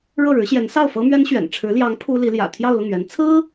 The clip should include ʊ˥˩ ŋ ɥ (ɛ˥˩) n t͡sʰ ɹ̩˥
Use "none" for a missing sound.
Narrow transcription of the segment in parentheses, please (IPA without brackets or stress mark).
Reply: ɛ˧˥